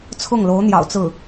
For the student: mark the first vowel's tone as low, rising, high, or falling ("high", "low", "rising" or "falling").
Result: falling